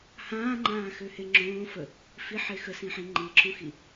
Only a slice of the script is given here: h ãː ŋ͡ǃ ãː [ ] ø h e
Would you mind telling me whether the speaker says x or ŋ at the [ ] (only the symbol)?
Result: x